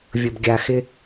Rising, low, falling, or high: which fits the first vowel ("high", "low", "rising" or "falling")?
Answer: low